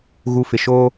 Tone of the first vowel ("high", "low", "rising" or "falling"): low